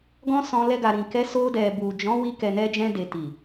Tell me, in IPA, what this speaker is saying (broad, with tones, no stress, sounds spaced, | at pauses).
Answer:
ɡ ɔ̃˦ s ɔ̃˧ l ɛ˧ ɡ a˨ ɾ ĩ˨ k ɛ˧ s o˧ d ɛ˨ b u˨ d͡ʒ ɔ̃˨˦ w i˧ k ɛ˨ n ɛ˧ d͡ʒ ɛ̃˧ d e˨ t i˨